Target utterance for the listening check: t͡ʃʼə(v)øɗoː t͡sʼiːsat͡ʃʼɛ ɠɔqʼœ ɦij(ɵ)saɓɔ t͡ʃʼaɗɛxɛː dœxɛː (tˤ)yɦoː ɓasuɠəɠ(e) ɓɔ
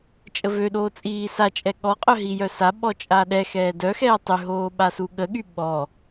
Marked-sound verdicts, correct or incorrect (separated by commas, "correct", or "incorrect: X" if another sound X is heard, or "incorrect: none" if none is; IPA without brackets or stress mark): correct, incorrect: œ, correct, incorrect: y